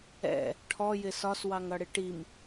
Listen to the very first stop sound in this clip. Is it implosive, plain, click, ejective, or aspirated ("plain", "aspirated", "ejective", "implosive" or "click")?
aspirated